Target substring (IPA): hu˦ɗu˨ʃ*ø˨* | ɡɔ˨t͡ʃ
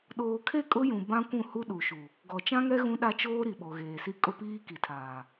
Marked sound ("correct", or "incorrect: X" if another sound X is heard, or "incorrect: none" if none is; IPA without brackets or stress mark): incorrect: u˨